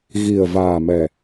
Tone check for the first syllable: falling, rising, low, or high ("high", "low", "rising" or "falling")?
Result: low